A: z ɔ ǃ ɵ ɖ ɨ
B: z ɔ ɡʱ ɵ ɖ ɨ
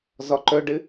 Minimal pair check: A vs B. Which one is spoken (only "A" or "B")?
A